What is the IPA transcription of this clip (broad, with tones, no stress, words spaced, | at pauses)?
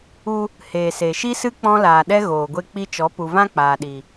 u˧ | heː˨se˨ʃi˦sɨ˦ k͡pɔ̃˦laː˨ɗɛ˦ ɣoː˨ɡʷe˧k͡pi˧t͡ʃɔ˨˦ pu˨vã˦ k͡paː˨ɗi˨